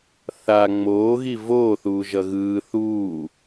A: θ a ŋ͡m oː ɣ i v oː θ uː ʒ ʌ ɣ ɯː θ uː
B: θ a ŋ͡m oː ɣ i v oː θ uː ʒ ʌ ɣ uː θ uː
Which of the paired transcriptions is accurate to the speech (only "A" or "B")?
A